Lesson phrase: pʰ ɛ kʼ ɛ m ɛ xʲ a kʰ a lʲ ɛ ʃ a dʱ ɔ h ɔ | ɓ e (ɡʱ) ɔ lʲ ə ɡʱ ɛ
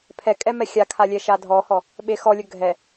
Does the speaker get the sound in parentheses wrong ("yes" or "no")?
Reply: yes